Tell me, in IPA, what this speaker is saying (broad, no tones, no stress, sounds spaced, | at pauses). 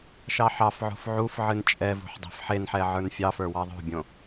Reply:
ʃ ɑ ħ ɑ f ʕ o̤ f ʕ u f ʕ ɨ n t͡ʃʼ ɛ v ṳ ħ dˤ e̤ f ħ e n ħ ɛ ʕ ə˞ n fʲ ɑ f ə˞ w ɑ ðˤ o̤ bʲ õ